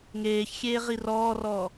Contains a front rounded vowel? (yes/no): no